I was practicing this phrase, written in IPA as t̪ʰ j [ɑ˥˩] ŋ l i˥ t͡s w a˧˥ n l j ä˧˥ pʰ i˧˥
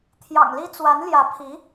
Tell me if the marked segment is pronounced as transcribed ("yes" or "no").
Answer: no